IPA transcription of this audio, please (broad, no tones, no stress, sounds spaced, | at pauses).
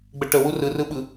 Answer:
ɡ͡b ə ʈ ə w u r ɯ r ɯ ɓ ɯ